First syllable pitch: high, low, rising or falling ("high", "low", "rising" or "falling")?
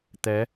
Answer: rising